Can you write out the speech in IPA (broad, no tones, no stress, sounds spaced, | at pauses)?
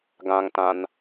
ɡ ã ŋ t ã n